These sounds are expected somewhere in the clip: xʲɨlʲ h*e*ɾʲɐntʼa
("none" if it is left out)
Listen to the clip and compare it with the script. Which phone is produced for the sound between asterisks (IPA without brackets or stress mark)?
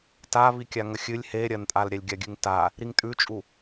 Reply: e